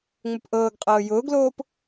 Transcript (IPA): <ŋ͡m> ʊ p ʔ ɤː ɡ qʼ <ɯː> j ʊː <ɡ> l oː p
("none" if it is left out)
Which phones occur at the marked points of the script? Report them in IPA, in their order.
ŋ͡m, ɤː, ɡ

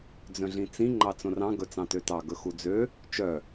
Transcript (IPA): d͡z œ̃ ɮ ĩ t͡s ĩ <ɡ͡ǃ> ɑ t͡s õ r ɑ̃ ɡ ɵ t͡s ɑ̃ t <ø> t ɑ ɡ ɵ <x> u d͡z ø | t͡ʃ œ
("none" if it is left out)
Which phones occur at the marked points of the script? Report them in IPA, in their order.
ŋ͡ǃ, ø, x

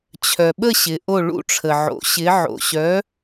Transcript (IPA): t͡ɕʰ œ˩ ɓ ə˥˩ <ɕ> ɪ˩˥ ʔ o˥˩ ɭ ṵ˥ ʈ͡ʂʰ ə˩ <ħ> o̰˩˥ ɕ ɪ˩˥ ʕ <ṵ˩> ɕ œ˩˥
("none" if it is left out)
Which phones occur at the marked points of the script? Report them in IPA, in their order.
ɕ, ʕ, o̰˩

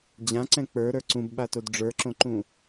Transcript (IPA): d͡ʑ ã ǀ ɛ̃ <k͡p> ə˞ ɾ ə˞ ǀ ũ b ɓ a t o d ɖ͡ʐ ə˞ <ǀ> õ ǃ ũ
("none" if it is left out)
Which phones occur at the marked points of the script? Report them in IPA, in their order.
k͡p, ǁ

